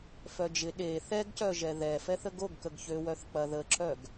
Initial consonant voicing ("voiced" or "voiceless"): voiceless